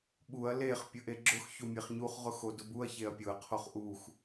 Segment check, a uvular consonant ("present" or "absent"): present